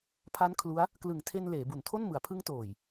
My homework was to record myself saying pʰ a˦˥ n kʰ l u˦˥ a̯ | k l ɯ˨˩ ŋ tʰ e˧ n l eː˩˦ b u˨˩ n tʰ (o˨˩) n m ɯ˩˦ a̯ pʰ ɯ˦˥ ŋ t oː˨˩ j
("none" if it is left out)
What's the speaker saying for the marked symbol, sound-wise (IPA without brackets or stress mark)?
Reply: o˥˩